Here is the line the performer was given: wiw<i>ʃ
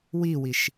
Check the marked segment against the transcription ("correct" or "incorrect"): correct